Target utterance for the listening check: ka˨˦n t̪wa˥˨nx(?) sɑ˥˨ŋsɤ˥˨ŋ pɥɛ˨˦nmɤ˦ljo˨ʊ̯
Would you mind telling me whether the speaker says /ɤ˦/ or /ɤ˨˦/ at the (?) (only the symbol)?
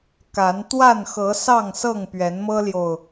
ɤ˨˦